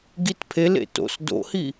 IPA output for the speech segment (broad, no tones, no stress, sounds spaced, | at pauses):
ɡ i t pʰ e l ḛ t o̰ s d o̰ h i